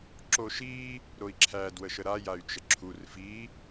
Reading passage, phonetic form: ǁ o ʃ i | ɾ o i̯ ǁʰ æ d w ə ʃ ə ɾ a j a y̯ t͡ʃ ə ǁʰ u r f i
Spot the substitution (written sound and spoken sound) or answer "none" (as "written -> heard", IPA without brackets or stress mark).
none